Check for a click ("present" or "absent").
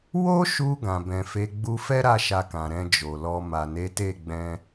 absent